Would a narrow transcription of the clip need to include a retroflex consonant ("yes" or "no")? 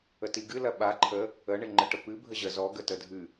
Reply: yes